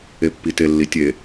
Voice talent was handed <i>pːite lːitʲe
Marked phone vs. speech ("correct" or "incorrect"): incorrect